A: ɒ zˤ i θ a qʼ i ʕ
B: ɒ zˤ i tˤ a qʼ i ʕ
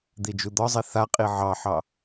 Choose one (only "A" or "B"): A